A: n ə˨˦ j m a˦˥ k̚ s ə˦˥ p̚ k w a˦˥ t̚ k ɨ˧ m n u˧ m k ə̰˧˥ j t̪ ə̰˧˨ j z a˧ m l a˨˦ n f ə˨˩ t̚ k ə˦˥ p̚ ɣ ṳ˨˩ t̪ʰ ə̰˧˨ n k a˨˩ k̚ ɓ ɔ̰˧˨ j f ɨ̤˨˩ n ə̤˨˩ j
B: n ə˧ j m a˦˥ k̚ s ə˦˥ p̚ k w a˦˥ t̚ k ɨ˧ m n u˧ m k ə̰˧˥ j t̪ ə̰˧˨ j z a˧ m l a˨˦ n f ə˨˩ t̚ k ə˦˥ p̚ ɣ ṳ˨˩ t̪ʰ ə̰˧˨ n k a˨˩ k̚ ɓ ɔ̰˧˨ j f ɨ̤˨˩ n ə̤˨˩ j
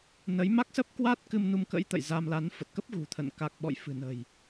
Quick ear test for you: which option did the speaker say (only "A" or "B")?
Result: A